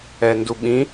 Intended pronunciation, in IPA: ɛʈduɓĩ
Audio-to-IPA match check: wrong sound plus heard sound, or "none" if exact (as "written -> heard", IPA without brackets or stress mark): ʈ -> n